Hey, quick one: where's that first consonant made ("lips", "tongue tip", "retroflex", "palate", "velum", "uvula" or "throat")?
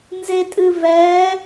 tongue tip